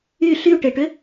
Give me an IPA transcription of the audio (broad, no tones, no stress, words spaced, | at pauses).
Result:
y ɬyʈeʈʏ